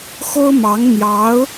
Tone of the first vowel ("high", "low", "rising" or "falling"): high